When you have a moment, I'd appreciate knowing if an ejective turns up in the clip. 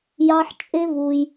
yes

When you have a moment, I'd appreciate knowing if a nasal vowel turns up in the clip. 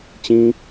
yes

